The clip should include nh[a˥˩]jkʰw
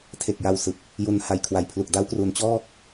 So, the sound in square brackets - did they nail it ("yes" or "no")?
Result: no